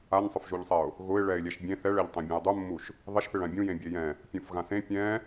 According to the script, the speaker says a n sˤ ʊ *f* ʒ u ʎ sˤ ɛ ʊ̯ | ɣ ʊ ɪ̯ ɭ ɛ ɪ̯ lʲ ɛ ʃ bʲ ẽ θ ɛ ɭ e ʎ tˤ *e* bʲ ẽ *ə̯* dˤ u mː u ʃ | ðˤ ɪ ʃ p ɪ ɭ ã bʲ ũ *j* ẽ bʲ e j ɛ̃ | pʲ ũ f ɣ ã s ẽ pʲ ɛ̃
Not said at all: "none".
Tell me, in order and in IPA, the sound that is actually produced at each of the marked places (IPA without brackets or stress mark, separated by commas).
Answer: f, ẽ, ʊ̯, j